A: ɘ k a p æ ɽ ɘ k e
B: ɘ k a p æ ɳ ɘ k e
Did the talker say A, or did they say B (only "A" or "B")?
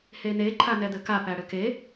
A